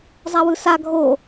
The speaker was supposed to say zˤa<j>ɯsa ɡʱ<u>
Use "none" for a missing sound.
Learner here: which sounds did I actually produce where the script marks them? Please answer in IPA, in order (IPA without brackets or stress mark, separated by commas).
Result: w, o